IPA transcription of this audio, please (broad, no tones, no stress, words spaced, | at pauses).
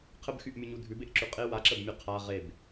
qʰəbxyʔmʲuɲu dʱʉbeʔǁʉ qʼe waǁəbmʲʉ qʰa ʁeb